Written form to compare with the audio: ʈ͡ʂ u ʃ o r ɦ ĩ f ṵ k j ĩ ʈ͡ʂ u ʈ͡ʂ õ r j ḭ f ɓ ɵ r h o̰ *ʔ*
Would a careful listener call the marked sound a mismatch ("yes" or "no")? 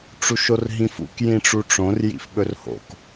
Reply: yes